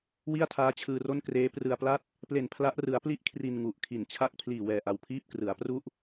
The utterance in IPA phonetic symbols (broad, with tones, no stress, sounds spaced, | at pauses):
w i˥˩ a̯ tʰ aː˦˥ t͡ɕʰ ɯː˧ r o˥˩ n k r eː˦˥ p r ɯ˧ a̯ p l a˥˩ t̚ | p l e˨˩ n pʰ l a˦˥ ʔ r ɯ˩˦ a̯ p l i˦˥ ʔ kʰ r i˧ n ŋ u˨˩ ʔ kʰ i˨˩ n t͡ɕʰ a˥˩ k̚ pʰ l iː˨˩ w ɛː˨˩ ʔ a˨˩ w pʰ iː˥˩ p̚ k r ɯ˩˦ a̯ p r u˦˥ ʔ